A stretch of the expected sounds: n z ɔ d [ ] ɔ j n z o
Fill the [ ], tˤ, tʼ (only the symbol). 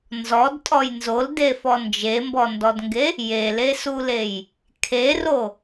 tʼ